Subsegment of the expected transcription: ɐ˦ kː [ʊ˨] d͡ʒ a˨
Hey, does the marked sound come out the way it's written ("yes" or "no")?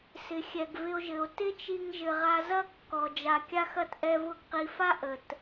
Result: no